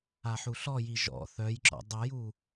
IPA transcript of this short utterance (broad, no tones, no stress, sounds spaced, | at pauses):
a ħ u ɬ ɔ j i ʒ ɔ̰ θ œ j ǁ ɔ̰ dˤ œ j u